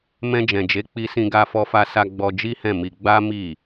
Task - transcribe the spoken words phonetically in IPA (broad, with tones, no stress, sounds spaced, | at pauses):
m ɛ̃˧ d͡ʒ ɛ̃˨ d͡ʒ e˨˦ k͡p i˧ s ĩ˧ ɡ a˧ f ɔ˧ f a˧ s a˧ ɡ͡b ɔ˧ d͡ʒ i˦ h ɛ̃˦˨ m i˧ ɡ͡b a˦ m i˦˨